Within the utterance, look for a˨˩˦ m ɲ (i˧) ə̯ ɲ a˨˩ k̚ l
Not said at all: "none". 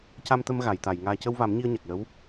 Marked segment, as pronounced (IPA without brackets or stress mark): i˧